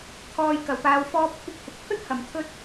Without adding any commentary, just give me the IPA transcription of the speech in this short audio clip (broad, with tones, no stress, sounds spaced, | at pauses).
t̪ʰ ɔː˧ j k ɐ˨ w p aː˧ w f ɔː˥ p̚ kʷʰ ɪ˥ k̚ h ɪ˨ k̚ pʰ ɵ˥ t̚ h ɐ˨ m t̪ʰ ɵ˥ t̚